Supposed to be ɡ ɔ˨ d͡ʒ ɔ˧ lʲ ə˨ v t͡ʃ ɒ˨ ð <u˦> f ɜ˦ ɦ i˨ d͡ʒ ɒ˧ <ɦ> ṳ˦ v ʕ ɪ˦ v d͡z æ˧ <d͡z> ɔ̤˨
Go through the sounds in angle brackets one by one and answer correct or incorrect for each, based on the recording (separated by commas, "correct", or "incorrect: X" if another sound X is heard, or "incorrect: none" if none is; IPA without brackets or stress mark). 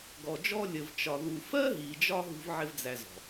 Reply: incorrect: u˨, correct, incorrect: z